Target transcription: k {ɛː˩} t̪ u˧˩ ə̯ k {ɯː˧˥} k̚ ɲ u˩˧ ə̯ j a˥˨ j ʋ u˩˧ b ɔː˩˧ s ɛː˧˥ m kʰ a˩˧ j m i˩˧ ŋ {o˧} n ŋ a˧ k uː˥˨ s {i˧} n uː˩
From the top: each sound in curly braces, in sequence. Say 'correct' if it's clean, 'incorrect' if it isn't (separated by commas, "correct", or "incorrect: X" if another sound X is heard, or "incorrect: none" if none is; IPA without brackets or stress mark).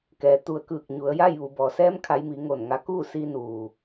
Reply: correct, incorrect: ɯː˧˩, incorrect: o˧˩, correct